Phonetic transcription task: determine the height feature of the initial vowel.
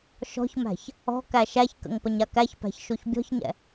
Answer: mid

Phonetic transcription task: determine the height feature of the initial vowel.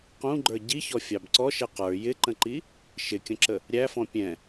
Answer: high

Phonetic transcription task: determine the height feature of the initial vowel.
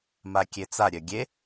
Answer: low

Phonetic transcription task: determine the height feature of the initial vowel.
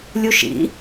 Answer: high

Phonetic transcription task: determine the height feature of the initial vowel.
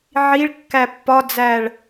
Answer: high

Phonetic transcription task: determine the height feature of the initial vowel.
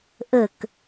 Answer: mid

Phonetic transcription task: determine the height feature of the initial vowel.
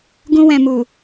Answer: high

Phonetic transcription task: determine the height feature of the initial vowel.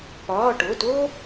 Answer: low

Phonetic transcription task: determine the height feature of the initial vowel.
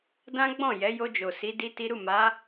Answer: low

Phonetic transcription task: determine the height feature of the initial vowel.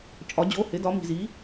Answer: low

